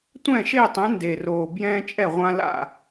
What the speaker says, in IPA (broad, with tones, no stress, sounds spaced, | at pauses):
tʷ ɛ̃ː˥˩ ʃ eː˥˩ tˤ ɛ̃˩˥ n d e˨˩ r oː˨˩ b j ɛ̃ː˦ t͡ʃʼ ɛ˥˩ ʁʷ ã˦ l a̰˥˩